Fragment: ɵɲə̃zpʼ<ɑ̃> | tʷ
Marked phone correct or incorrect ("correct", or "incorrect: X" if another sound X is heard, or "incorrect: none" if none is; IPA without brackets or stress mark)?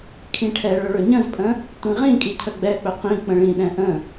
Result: incorrect: ə̃